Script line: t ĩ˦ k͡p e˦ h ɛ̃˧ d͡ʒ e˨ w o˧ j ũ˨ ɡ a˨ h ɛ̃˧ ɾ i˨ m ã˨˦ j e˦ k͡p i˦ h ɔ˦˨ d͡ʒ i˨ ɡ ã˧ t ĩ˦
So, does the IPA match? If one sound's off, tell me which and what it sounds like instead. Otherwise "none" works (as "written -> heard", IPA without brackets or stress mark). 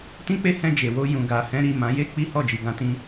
none